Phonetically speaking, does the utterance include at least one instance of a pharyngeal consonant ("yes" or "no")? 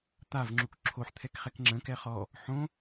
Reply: yes